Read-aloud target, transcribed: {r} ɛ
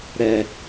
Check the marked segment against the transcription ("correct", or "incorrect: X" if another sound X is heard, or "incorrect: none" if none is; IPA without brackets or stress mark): incorrect: ɾ